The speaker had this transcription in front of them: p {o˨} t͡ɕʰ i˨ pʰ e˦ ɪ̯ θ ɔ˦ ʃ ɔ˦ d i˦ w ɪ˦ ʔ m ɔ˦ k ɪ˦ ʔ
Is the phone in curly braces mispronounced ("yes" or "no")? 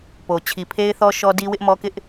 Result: no